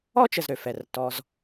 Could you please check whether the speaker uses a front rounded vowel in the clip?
yes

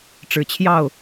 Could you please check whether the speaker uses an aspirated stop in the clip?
yes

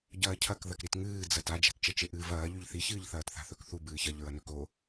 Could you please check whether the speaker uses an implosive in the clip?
no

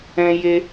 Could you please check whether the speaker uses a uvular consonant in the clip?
no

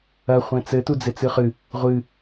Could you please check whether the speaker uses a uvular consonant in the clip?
yes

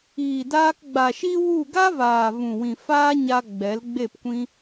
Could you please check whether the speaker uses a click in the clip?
no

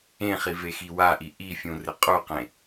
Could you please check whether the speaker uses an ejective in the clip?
yes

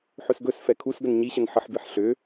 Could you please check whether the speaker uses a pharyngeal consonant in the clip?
yes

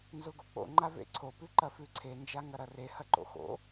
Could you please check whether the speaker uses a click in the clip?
yes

